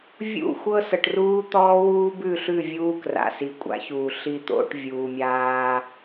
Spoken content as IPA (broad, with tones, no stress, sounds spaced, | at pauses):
vʲ ṵ˦˨ xʷ ɤ˦ s ɤ˨ ʈ r uː˦ t̪ ɔː˦ w uː˦ b ʉ˦˨ ɬ ʉ˦˨ vʲ uː˦ k r a̰˨ s i˨ kʷʼ a̰˦ ç uː˨ ɬ i˨ t̪ o̰˨ ʈ vʲ uː˨ mʲ aː˦